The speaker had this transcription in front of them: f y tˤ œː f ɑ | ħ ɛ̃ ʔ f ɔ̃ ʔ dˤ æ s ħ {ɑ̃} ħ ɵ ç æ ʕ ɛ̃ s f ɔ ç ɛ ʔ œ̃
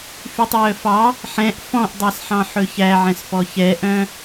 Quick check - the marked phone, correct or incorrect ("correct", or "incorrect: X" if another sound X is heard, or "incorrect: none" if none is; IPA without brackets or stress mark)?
correct